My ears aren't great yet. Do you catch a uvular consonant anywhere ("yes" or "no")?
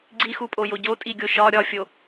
no